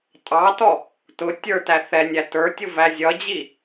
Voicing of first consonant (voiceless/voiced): voiceless